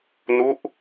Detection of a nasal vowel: absent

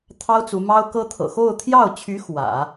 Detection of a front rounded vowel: present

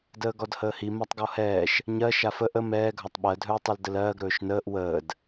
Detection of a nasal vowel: absent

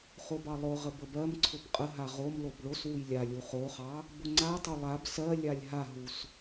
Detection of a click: present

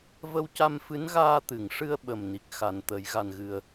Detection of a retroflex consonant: present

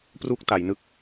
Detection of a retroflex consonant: absent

